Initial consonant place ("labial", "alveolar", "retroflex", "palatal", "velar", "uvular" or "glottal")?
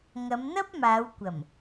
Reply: velar